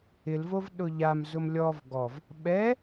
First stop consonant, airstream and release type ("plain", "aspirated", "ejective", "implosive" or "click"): implosive